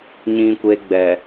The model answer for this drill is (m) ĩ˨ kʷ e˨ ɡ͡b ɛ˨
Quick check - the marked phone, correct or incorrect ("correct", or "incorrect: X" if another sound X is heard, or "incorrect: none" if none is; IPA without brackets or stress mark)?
incorrect: ɲ